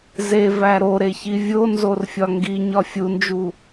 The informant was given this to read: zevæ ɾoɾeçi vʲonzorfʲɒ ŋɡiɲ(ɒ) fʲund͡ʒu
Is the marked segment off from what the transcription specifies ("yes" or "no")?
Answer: no